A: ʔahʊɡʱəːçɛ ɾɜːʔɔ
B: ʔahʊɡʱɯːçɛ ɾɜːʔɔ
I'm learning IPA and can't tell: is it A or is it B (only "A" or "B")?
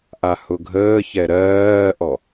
A